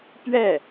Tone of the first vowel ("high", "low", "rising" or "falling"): falling